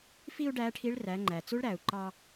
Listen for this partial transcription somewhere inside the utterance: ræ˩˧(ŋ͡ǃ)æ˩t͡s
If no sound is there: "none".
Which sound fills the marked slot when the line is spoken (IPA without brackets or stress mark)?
ŋ͡ǃ